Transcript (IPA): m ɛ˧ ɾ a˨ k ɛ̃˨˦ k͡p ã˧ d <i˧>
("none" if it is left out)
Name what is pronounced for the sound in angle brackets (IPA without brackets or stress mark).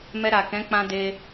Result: e˧